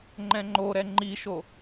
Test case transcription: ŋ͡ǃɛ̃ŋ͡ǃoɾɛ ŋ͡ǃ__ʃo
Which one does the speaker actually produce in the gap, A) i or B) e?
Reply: A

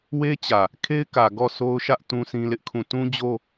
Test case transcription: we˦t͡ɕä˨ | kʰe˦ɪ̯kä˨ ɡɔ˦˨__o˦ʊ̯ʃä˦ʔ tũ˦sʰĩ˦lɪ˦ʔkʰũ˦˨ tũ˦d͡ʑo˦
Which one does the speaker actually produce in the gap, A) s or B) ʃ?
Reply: A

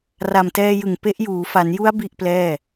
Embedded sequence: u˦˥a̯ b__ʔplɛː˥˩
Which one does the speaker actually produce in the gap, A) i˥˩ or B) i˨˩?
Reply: A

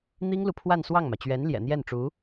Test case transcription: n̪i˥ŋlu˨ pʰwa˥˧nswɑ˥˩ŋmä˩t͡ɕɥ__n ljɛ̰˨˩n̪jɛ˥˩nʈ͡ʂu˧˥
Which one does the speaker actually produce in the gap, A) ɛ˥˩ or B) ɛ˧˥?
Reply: B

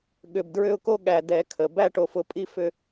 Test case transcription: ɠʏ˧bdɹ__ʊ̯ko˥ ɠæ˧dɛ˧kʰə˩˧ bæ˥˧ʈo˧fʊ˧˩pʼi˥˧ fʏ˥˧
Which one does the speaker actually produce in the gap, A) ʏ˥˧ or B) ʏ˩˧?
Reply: A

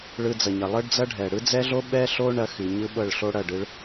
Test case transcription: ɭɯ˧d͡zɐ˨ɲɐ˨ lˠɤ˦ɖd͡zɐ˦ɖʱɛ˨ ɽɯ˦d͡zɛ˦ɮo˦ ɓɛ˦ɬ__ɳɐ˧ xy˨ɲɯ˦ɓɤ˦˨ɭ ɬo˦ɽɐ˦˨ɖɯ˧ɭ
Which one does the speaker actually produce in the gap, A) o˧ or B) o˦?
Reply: B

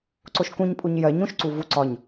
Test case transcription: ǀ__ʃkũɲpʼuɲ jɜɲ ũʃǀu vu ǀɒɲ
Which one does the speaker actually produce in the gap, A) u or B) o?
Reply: B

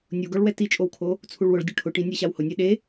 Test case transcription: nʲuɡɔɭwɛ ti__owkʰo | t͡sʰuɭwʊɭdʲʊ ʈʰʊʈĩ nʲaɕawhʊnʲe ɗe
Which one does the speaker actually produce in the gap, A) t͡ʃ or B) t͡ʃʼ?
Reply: B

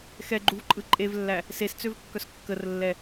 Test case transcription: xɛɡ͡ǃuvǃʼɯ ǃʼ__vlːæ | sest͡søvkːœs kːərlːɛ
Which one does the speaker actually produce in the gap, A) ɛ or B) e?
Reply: B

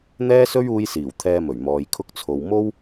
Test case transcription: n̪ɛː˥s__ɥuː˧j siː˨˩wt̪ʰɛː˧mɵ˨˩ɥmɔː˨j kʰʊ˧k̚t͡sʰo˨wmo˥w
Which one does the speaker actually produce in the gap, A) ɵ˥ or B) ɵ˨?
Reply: A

